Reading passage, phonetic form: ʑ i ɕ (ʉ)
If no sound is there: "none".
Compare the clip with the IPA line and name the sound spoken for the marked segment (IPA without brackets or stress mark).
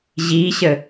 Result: ə